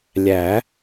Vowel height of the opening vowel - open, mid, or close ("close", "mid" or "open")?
open